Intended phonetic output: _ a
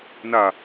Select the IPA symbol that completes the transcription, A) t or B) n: B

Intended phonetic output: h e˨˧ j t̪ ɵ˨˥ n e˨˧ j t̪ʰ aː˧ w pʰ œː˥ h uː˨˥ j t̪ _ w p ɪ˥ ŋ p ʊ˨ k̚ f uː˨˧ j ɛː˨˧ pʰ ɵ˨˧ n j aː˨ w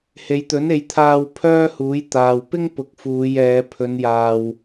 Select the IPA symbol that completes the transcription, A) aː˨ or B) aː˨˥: A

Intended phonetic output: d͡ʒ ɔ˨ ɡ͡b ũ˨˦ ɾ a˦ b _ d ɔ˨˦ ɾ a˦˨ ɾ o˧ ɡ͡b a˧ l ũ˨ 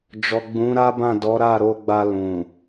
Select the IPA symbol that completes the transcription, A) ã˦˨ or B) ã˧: A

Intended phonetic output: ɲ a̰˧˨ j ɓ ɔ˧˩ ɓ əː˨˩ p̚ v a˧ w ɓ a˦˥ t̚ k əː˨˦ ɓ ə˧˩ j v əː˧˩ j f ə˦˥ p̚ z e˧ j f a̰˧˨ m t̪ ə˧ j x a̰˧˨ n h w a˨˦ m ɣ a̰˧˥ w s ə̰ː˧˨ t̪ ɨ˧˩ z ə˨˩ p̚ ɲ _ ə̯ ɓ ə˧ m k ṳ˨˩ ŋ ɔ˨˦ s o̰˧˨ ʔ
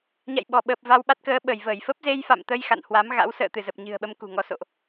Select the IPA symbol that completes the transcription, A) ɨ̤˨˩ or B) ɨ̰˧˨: A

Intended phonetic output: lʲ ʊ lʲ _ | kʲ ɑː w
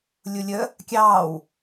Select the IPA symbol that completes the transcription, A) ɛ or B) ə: B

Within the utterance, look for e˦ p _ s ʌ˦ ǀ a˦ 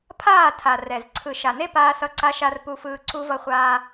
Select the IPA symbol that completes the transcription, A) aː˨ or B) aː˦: B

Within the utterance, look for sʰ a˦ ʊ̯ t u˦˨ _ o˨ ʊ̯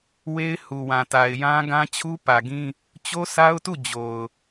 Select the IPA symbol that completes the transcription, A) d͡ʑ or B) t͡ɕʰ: A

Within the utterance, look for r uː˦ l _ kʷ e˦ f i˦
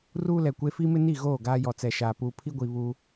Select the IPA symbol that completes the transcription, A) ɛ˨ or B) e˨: A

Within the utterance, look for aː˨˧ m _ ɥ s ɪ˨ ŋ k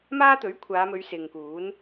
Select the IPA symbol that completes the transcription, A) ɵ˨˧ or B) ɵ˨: A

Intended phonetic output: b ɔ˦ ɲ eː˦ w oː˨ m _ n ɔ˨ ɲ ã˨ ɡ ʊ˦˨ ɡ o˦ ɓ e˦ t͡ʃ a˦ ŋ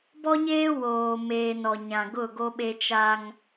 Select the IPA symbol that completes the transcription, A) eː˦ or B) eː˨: B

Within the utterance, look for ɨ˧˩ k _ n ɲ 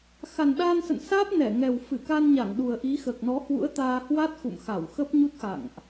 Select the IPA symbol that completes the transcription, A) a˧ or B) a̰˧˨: A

